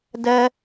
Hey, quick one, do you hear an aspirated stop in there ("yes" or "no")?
no